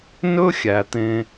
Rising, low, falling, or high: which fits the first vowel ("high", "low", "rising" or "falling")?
high